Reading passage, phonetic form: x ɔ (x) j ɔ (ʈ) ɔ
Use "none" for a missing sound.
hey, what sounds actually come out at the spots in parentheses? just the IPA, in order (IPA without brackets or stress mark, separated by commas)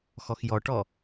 x, ʈ